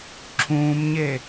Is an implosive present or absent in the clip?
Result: absent